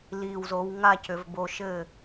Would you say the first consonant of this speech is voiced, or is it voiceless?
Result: voiced